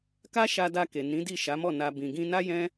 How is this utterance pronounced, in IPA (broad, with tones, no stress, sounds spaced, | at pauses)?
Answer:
k a˦ ʃ a˧ d a˧ k e˨ n ĩ˨˦ d i˦˨ ʃ a˨˦ m ɔ˦˨ n a˨ b ĩ˨ ɡ ĩ˧ n a˦ j ɛ̃˦